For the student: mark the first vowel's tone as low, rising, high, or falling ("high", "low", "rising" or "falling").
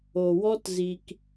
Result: low